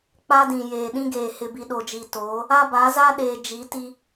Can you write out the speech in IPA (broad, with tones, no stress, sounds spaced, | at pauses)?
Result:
k͡p a˦ d ĩ˨ j eː˨ ɗ ĩ˦ ɡ eː˨ h ɪ˨ b i˨ ɗ o˨ d͡ʒ i˨ t oː˨˦ | a˦ b a˨˦ z a˦ ɗ eː˨ d͡ʒ i˨˦ t i˦